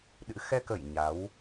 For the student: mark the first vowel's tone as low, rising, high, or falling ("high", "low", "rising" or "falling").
rising